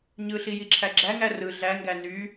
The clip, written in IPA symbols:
ɲ ɯ ɬ i j i ǁʰ æ ɡ͡ǁ æ ŋ æ r ɯ ɮ æ ŋ ɡ æ n y

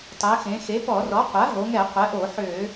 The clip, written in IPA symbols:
tˤ ɛ˩˧ x ẽ˩˧ x e˩˥ p ɔ˧˩˧ r ɔ˩˥ qʷ a˩˥ ɦ o˩˧ ŋ ɛ˧˩˧ qʷ ɛ˩˥ ʔ o˧˩˧ ħ ø˧˩˧

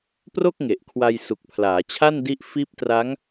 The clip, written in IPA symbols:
p r o˥˩ k̚ ŋ e˨˩ ʔ kʰ w a˧ j s u˨˩ k̚ pʰ l aː˩˦ t͡ɕʰ a˥˩ n d i˦˥ ʔ f iː˦˥ p̚ t r a˦˥ ŋ

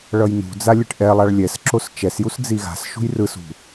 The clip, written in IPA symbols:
ɭ ʌ j n ṳ d͡z a lʲ ɯ ʈ ʔ ɛ lˠ a ɭ lʲ ɛ s ǁ o s t͡ʃ ɛ s j u s d͡z i ɣ a̤ s ʃ ṳ j r ɯ s ṳ

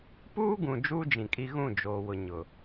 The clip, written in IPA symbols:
p uː˦ ɡ ũ˨ d͡ʒ uː˦ d͡ʒ ĩ˨ kʼ i˦ ɣ ũ˦˨ d͡ʒ oː˨ w ʊ˨ ɲ ʊ˨

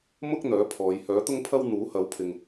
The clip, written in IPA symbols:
m ʊ˥ k̚ n̪ œː˨˥ pʰ ɔː˨˧ j h œː˨˥ t̪ ʊ˥ ŋ pʰ ɐ˥ w n̪ uː˨˥ h ɐ˨˥ w pʰ ɪ˨ ŋ

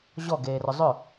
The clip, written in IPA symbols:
ʑ ɔ ɡ eː r ʊ zˤ ʏ

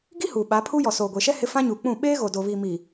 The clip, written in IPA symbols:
ɡ i˦ h uː˨ ɓ aː˨˦ pʰ uː˦ j ɔ˨ s oː˨ ɡʷ eː˨ ʃ ɛ˦ h ɪ˦ f ã˦ ɲ uː˨ k͡p ũ˦˨ ɓ eː˦ ɣ o˨ d o˨ β i˨ m iː˨

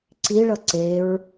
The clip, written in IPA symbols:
ǀ i ɭ ʌ ǀ e ɹ

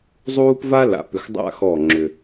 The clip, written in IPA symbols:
zˤ uː˥ p v a˥ l a̰˨ p ʏ˨ x dˤ a̰˦˨ x ɔ˦˨ ŋ͡ǁ ʏ˨

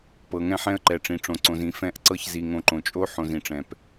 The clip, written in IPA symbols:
p ɤ˨ ŋ ɛ̃˦ ħ ɛ̃˦ ə̯ ǃ ɛ˨ ʈ͡ʂ ĩ˨ ʈ͡ʂ õ˨ ǀ õ˨ z ĩ˨ f ɛ̃˦˨ ʔ ǀ ɤ˦ ç z i˨ ŋ õ˨ ǃ õ˨ t͡ʃʼ o˦ ħ õ˨ z ĩ˨ ʈ͡ʂ ɛ̃˨ p

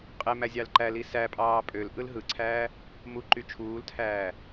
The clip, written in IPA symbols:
qʼ e m æ zʲ ɑ l ǃ æ l i s æ pʼ ɑː pʼ ø l ʔ ɯ l ɦ ɯ ǀʰ æː | m u ǃ y t͡ʃʰ uː l tʰ æː

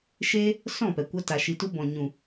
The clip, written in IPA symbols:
ʃ eː˦ | s ɔ̃˦˨ p ɛ˨ kʷ a˧ t a˨ ʃ i˨ t u˧ b ɔ̃˨ ɲ ũ˨

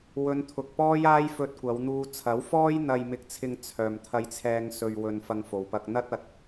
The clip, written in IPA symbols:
w ɵ˨˧ n t̪ʰ ʊ˨ k̚ p ɔː˥ j aː˥ j f ɵ˧ t̚ kʷ ɐ˨˧ w n̪ uː˧ t͡sʰ ɐ˨˥ w f ɔː˥ j n̪ ɐ˧ j m ɪ˧ k̚ t͡sʰ ɪ˧ ŋ t͡sʰ œː˨ m t̪ʰ ɐ˧ j t͡sʰ ɛː˧ ŋ s ɵ˧ ɥ w ɵ˧ n f ɐ˧ ŋ f o˨ w p ɐ˧ k̚ n̪ ɐ˥ t̚ ɐ˨˥ t̚

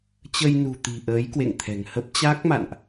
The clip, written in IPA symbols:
t͡ɕ ə˧ j n ṳ˨˩ t̪ i̤˨˩ ʔ əː˨˦ j k w ḛ˧˨ ŋ t̪ʰ ɛ̤˨˩ ŋ h ə˦˥ p̚ t͡ɕ a˦˥ k̚ m a̰˧˨ n ʔ

